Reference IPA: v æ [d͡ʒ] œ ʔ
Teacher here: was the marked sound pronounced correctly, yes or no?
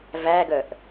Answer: no